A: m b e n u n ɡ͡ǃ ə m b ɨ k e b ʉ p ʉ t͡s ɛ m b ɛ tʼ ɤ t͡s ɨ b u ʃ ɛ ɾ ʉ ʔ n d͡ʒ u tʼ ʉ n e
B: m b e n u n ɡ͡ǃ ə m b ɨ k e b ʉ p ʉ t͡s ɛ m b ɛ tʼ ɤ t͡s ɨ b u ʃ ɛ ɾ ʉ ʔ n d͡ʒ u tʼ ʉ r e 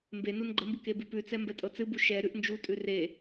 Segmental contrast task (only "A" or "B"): B